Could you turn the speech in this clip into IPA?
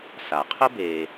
s a˩ qʰ ʊ˥ b eː˨

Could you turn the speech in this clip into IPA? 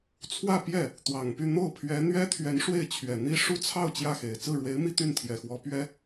t͡sʰ w ä˥˧ p j ɛ˥˩ | t̪ w ɑ˨˩ ŋ p y˥˧ n̪ o˥˩ ʊ̯ pʰ ɥ ɛ˧˥ n̪ ɥ ɛ˥ t̪ʰ ɥ ɛ˧˥ n ʂ w e˥˩ ɪ̯ t͡ɕʰ ɥ ɛ˨˩ n̪ i˥ ʂ u˥ t͡sʰ ɑ˥˧ ʊ̯ t͡ɕ j ä˥˩ x e˨˩ ɪ̯ t͡s ɹ̩˥˩ ɻ w e˧˥ ɪ̯ m i˥ t̪ y˥˩ n t̪ʰ j ɛ˨˩ x w ɔ˧˥ p ɥ ɛ˥

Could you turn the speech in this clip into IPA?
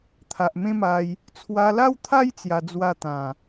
t̪ʰ a˨ ʔ m ẽ˦ m a˧ j | t͡sʰ w a˧ l a˦ w t̪ʰ a˦ j t͡s j a˧ d͡z w a˥˧ t̪ ã˨˩

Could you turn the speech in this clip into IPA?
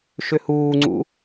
ʃ ʏ h uː ŋ͡ǀ ṵ

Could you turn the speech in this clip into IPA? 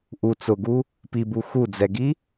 ʔ u t͡s ʊ ɡ u | p i b u x u d͡z ɛ ɡ i

